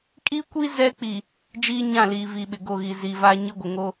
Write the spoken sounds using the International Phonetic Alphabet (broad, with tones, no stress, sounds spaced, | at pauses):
kʼ i˦ kʷ i˦ z ɛ˦ k͡p i˨ | d͡ʒ iː˦ ɲ ã˦˨ l iː˨ v i˨ ɓ ɪ˨ ɡ o˦˨ ɣ i˨ z i˨ v a˦ ɲ ɪ˦ ɡʷ ɪ˨ ŋ o˦